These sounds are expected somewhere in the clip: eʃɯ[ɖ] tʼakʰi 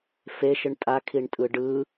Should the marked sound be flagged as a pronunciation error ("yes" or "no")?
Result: yes